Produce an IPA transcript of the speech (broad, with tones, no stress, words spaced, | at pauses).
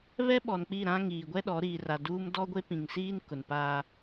βɛ˦ɓɔ˨nk͡pi˦˨ ɾã˦ŋiː˨ ɡʷɛ˦ɗɔ˨˦ ɾiː˨ra˨duː˦m dɔ˦ɡʷe˦pĩ˨ŋsiː˦n kʊ˨npaː˦